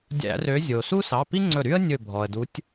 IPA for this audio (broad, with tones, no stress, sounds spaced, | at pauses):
dʲ æ̰˧˩˧ r ø˨˦ zʲ o˩ s u˥ s ɑ˩˧˩ p i˥ ŋ͡ǀ ɵ˧˩ ɾ y˥ ə̯ nʲ ɵ˧˩ bʱ ɔ˩ ə̯ d u˨˦ tʲ